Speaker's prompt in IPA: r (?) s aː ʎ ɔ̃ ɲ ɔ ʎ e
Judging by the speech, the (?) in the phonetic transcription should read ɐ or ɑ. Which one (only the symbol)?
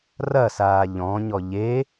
ɐ